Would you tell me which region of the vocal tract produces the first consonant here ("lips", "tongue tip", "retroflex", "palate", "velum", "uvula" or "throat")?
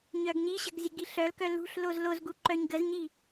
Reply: palate